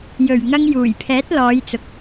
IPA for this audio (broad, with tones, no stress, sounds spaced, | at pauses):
j ɵ˨˩ ɥ ŋ ɐ˧ ŋ j uː˨˩ j pʰ ɛː˨˥ t̚ l ɔː˨˧ j t͡s ʊ˨ k̚